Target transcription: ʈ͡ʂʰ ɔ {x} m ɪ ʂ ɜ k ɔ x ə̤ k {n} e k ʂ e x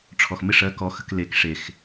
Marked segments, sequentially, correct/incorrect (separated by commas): correct, incorrect